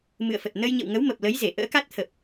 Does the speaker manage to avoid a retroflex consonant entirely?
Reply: yes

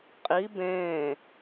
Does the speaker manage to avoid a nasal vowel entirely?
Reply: no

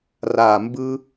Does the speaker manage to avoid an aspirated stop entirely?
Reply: yes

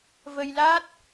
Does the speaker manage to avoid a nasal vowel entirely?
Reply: yes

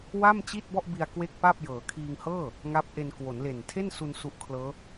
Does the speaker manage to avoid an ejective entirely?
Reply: yes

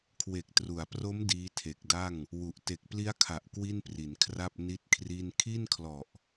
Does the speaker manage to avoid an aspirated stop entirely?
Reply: no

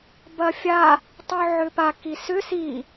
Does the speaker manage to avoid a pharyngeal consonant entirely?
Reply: no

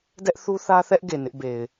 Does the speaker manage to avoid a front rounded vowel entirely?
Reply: yes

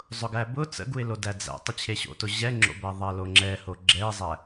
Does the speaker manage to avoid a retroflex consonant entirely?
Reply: yes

